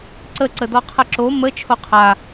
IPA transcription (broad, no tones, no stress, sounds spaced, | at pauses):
ǀ ə ǀ ə d ɔ qʰ ə ǁ o m ə t͡ʃʰ o qʰ a